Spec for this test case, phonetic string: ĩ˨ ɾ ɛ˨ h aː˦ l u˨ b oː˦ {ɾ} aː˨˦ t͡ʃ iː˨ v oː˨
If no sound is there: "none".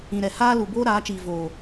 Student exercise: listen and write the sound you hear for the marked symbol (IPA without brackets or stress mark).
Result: ɾ